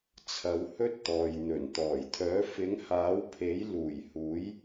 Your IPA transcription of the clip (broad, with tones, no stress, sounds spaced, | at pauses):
t͡sʰ ɐ˨˧ w h ɵ˥ t̚ t̪ ɔː˨ j n̪ ɵ˨˩ n t̪ ɔː˨˩ j t̪ʰ œː˨˥ f ɪ˨˥ ŋ h aː˨˥ w pʰ e˨˥ j l uː˨˩ j h uː˨˥ j